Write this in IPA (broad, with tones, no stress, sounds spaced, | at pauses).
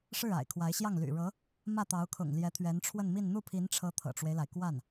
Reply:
ʂ ɻ̩˥˩ a̰˨˩ ɪ̯ kʰ w a˧˥ ɪ̯ ɕ j ɑ˥˩ ŋ l y̰˨˩ ɻ ɤ˧˥ | m ä˥˩ t̪ ɑ˧˥ ʊ̯ kʰ ʊ̰˨˩ ŋ l j ɛ˧˥ t̪ʰ ɥ ɛ˧˥ n ʈ͡ʂʰ w ə˥˧ n m i˥˧ n n̪ u˥˩ pʰ i˧˥ n ʈ͡ʂʰ ɤ˧˥ t̪ʰ ɤ̰˨˩ ʈ͡ʂ w e˦ ɪ̯ l a˩ ɪ̯ k w a˥˩ n